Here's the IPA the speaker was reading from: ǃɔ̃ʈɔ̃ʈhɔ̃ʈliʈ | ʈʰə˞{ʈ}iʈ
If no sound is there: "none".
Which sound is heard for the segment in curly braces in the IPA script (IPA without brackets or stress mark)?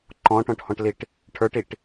ʈ